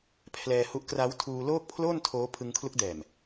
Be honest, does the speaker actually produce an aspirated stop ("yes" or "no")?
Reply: yes